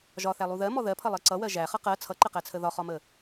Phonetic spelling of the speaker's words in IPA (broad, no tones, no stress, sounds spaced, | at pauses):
ʒ ɒ θ æ lˠ u ð ɜ m ɔ ð ɜ pʰ ʌ lˠ ɜ ǀ ʌ w ɜ ʒ æ χ ʌ q ɜ t͡sʰ ʌ ǃ ə q æ t͡sʰ ə ð ɒ χ ɒ m ə